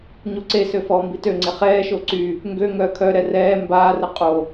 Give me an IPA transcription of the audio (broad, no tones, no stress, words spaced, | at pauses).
ɲuǀesø fɔːmbitøŋ͡ǀe χɛːʃo ǀy | ŋɡø ŋœːkʰœɾɛ rɛː mbaːrə qʼo